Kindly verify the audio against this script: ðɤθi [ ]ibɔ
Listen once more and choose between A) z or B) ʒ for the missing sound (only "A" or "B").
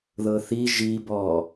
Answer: B